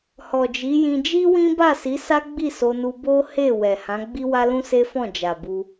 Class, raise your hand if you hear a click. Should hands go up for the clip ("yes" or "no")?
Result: no